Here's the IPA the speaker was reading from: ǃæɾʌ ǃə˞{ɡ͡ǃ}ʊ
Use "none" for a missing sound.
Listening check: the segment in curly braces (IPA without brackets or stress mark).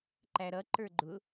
ɡ͡ǃ